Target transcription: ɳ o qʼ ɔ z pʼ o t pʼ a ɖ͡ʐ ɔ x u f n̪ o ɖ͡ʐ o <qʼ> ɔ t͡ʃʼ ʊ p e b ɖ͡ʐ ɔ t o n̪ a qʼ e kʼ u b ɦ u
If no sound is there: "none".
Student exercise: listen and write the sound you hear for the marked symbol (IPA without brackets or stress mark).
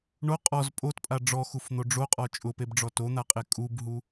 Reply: qʼ